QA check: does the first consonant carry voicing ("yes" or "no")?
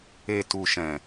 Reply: no